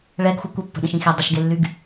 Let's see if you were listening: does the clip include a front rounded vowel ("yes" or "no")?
yes